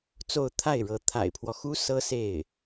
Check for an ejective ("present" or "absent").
absent